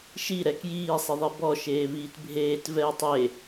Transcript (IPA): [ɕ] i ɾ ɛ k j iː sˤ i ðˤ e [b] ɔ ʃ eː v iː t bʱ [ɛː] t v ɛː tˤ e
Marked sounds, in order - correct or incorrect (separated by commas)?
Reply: incorrect, correct, incorrect